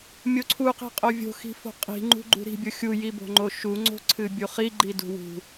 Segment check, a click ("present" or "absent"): present